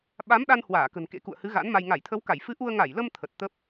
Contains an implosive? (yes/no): yes